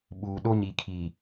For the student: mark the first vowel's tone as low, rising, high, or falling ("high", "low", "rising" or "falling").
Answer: low